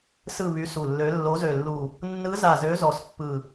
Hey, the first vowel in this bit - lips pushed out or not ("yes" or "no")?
no